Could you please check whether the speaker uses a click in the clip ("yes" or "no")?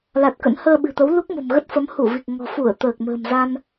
no